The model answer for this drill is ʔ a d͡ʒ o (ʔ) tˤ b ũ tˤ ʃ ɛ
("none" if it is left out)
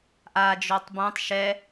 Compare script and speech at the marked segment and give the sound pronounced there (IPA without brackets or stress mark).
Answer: none